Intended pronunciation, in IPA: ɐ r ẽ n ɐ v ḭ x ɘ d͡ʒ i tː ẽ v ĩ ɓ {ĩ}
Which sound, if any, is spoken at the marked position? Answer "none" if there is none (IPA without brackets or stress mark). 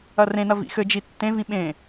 ẽ